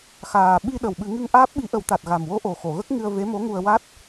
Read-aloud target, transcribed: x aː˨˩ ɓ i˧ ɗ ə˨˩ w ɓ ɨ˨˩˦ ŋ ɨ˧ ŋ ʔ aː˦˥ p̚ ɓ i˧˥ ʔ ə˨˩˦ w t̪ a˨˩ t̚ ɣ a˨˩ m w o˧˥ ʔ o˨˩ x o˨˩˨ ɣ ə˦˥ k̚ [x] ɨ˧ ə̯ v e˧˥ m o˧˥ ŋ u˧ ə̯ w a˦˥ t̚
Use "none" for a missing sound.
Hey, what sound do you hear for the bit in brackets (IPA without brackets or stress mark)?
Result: ŋ